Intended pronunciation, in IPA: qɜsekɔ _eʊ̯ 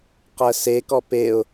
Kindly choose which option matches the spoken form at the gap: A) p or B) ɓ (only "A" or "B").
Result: A